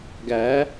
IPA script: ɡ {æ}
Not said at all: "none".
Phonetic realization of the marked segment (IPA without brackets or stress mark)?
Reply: æ